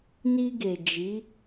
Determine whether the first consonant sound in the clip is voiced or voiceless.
voiced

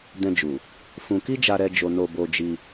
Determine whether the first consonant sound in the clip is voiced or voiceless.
voiced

